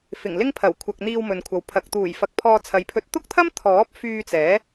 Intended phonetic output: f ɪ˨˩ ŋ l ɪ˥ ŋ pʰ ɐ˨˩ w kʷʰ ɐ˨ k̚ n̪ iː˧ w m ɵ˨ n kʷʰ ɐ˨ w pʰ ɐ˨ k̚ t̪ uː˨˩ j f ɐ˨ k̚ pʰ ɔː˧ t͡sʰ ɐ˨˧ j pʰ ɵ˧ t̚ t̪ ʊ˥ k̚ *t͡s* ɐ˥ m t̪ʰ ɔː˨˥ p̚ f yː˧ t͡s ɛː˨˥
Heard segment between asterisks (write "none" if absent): t̪ʰ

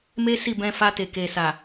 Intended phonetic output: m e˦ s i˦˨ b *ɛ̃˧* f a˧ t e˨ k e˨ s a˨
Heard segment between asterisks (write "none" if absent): ɛ̃˧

